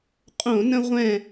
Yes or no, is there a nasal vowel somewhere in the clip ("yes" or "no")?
yes